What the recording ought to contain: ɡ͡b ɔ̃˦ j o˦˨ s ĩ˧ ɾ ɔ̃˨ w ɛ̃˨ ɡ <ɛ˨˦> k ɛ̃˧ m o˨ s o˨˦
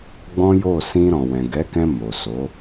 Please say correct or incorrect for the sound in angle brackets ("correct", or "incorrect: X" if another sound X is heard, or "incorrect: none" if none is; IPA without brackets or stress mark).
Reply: correct